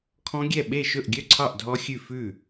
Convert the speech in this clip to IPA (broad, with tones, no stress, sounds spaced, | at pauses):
kʰ ɔ̃˦˥ ɡʲ ɛ˥˩ ɓ e˥˩ ʃ ɵ˥˩ ʔ ɡʲ œ˥˩ ǀʰ ɑ˥˩ ʔ dʱ ɔ˦˥ xʲ ʉ˥˩ f ʉ˥˩